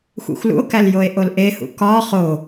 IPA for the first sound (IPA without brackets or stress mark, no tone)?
xʷ